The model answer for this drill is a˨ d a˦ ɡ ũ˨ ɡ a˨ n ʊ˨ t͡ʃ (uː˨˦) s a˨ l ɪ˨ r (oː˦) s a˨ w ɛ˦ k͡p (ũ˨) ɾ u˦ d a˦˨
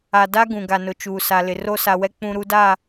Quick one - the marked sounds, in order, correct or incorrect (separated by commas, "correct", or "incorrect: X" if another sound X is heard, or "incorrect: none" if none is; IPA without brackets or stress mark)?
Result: incorrect: uː˨, incorrect: o˦, incorrect: ũ˦